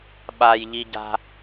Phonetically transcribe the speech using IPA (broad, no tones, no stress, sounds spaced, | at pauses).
ɓ a j ʎ i ɟ a̤